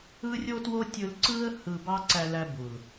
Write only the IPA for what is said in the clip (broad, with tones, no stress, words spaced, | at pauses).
ɯ˦ rʲo˦two˦ tʲɯ˧lǀɯ˦ə̯ hɯ˧bɑ˦ ǀæ˧læ˧bu˨l